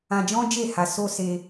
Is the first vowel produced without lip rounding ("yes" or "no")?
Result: yes